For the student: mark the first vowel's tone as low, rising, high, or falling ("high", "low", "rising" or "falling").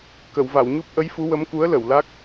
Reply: low